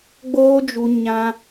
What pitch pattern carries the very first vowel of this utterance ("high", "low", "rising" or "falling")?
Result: high